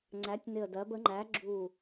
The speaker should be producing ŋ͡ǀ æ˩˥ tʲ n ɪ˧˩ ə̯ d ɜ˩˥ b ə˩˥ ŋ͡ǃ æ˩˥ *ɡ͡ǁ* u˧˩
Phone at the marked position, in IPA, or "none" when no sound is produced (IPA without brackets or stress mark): ɡ͡ǁ